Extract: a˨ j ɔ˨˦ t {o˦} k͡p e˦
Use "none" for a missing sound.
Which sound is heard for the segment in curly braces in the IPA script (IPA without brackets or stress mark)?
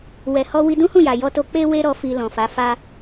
o˧